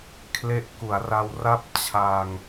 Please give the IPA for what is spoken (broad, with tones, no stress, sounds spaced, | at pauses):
kʰ l e˦˥ ʔ k u˩˦ a̯ r a˧ w r a˥˩ p̚ t͡ɕʰ a˧ ŋ